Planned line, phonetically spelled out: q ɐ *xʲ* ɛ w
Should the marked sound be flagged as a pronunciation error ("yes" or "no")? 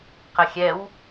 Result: no